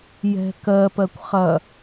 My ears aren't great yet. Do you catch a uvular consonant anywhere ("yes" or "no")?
yes